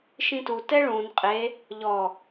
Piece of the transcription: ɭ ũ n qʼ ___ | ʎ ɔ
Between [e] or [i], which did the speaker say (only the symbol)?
e